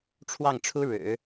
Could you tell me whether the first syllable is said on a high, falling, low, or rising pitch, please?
falling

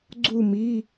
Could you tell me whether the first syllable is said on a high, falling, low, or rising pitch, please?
falling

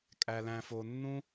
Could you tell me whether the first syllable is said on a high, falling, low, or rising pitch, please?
high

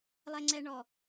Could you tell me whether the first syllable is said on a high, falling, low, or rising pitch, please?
low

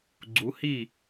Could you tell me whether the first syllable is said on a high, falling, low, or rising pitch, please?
rising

